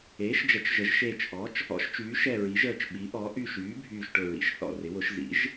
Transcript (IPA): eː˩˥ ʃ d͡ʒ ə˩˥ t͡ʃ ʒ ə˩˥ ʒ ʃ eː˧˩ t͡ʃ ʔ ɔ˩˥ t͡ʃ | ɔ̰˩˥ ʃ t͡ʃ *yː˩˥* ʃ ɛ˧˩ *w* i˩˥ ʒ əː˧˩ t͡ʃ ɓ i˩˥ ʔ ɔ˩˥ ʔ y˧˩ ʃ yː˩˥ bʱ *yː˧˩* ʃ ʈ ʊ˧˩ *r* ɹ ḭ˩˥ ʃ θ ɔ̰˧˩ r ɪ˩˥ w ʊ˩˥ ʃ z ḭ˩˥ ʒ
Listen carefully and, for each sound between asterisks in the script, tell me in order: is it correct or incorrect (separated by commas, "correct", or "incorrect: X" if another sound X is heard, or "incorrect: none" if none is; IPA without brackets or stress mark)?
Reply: correct, incorrect: ɹ, correct, incorrect: none